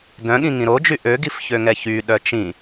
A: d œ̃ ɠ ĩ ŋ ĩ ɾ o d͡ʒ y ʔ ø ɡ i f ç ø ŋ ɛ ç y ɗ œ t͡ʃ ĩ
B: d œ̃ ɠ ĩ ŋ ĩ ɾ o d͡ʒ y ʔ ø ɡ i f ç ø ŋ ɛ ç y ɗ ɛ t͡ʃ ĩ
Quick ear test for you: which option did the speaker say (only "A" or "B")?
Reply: A